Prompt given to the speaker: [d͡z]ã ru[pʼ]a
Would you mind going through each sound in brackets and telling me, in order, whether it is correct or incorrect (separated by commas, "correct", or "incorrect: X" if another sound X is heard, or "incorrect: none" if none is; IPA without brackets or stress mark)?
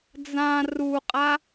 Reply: correct, incorrect: qʼ